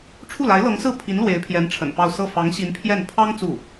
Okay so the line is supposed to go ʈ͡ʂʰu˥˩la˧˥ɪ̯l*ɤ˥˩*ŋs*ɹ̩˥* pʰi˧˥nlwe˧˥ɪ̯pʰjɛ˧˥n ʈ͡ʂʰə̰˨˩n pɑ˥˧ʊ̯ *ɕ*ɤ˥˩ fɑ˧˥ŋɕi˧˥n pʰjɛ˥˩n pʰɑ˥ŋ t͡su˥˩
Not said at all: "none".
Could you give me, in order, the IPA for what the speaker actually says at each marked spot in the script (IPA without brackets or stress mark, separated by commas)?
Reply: ɤ˧˥, ɹ̩˥˩, s